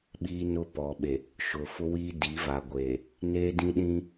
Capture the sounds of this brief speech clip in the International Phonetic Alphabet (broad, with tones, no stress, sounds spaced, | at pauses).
ɓ iː˦ n ʊ˦ p ɔ˨ ɓ e˨ | ʃ ʊ˨ f ʊ˦ w iː˦ d i˨˦ v a˨ ɡʷ e˨ | n e˦ d ĩ˦ ɗ ĩ˦